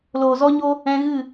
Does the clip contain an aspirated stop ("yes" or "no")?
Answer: no